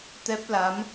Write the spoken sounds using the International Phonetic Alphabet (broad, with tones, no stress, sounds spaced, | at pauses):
t̪ ɛ˦˥ p̚ l a˨˦ m